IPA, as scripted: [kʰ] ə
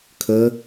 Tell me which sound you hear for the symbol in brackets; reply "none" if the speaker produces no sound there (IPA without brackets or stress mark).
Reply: kʰ